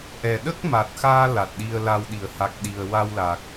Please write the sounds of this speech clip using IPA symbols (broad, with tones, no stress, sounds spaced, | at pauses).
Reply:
ʔ ɛ˨˩ ɗ ə˦˥ k̚ m a˨˩ t̚ x aː˧ l a˨˩ t̚ ɗ i˧ ə̯ l a˧ w ɗ i˨˩˨ ə̯ h a˨˩ k̚ ɗ i˨˩ ə̯ w a˧ w l a˨˩ k̚